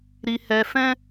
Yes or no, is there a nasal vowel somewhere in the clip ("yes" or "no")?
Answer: yes